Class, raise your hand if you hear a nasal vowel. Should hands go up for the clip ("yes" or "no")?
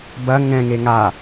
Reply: yes